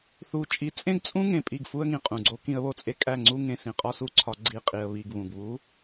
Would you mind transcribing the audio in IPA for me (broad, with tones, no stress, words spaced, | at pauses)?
θu˨ t͡ʃʼi˨˦t͡sʼẽ˦ɡt͡sʼũ˦ŋẽ˨ pʼi˦˨ɡfu˦ə̯ŋĩ˨qʼũ˨ ɡ͡ǀo˦kĩ˦ə̯βo˦t͡sʼe˦ kʼæ˦˨ŋ͡ǀu˦ ŋẽ˨ sĩ˨qʼɒ˦su˦ ǀʰɒ˦ɡ͡ǀi˦˨ qʼi˨ə̯βi˨ɡ βũ˨ɡβu˨˦